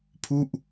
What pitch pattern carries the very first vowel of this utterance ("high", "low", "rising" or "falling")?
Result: falling